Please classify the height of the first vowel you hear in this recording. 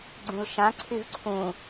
high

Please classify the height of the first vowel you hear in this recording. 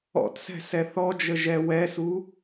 mid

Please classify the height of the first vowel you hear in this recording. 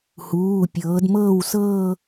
high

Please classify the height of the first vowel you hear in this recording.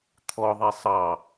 mid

